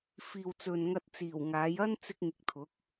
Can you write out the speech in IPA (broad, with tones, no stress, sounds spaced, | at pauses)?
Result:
f iː˨ w t͡s ɵ˨ n ŋ ɐ˧ t̚ t͡s iː˨˩ w ŋ aː˨˥ j ɐ˥ n t͡s ɪ˥ k̚ ŋ ɪ˧ k̚ t̪ʰ ʊ˨˥ k̚